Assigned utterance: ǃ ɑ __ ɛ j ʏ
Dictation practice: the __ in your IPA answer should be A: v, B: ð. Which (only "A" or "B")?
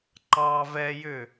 A